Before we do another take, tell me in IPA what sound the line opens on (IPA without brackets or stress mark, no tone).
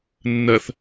nː